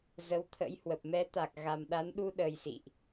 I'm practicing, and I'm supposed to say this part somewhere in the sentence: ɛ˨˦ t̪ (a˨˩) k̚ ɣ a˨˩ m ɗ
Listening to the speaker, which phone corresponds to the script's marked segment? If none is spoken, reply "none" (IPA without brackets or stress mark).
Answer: a˨˩